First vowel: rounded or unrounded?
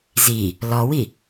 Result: unrounded